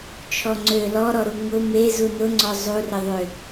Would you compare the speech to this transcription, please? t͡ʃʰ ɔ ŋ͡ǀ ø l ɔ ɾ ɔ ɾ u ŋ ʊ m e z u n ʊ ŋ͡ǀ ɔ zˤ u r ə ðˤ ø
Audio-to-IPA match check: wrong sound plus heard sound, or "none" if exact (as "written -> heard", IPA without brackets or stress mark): none